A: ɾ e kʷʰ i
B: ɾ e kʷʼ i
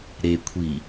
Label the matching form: A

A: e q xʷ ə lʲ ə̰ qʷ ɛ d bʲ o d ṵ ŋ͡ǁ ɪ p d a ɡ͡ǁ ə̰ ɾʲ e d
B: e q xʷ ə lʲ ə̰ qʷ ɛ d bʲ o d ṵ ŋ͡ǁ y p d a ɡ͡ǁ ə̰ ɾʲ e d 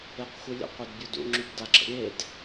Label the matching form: B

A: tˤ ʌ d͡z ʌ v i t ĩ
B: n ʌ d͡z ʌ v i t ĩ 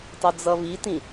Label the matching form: A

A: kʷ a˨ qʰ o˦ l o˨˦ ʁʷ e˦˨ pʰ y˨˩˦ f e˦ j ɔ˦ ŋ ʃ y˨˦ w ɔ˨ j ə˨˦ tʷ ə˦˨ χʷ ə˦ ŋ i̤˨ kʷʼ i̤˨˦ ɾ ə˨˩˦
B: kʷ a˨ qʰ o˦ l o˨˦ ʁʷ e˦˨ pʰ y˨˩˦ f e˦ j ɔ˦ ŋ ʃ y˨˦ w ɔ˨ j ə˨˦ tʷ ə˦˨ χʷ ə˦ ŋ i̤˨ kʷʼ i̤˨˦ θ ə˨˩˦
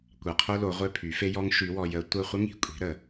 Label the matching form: A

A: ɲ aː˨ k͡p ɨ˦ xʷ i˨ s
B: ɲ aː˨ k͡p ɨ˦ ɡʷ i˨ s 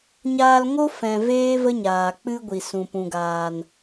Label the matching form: B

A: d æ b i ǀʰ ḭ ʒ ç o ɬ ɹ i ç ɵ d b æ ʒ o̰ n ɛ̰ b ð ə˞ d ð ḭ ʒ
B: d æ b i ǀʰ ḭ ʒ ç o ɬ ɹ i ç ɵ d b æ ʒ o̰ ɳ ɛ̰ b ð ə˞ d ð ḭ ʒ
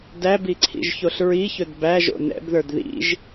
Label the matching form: A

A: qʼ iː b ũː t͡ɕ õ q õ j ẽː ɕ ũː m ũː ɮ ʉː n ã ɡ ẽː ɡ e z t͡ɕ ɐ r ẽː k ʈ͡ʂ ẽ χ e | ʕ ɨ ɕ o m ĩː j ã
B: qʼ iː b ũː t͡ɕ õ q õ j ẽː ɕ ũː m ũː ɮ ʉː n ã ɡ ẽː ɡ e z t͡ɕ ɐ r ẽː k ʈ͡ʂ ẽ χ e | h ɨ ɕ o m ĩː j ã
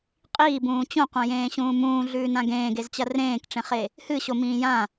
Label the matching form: B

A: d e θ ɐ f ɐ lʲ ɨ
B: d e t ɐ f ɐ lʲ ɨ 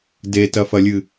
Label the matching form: B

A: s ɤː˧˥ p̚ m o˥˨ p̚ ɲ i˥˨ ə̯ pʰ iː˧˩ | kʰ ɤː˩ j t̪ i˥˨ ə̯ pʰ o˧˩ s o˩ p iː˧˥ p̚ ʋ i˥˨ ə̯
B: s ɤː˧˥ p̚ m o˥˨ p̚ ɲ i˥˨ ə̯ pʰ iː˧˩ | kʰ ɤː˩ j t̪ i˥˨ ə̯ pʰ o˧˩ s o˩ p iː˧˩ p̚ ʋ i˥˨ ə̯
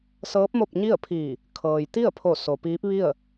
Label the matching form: A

